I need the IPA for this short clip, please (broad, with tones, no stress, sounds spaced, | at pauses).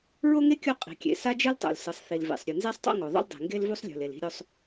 ɹ o˥ ŋ e˥ kʲ o˥ qʼ i̤˩ kʲ ḛ˩ s a˥ d͡ʒ ɯ˥ l tˤ o̰˩ l s ɯ˩ sˤ θ i˩ l v ḛ˩ sˤ ɾʲ u˩ n z e˥ sˤ tˤ o̰˥ ŋ o˩ ðˤ o̰˥ l dˤ i̤˩ ŋ ɡ e˥ l v u˥ sˤ lʲ ṳ˩ l e˩ l i̤˥ ɾʲ o˥ sˤ